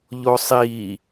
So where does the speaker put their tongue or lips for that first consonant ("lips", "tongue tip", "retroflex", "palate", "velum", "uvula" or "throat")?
palate